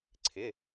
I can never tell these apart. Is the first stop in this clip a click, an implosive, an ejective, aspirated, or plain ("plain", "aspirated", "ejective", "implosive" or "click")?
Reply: click